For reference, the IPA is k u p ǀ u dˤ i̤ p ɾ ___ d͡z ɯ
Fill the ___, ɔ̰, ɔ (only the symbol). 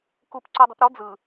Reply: ɔ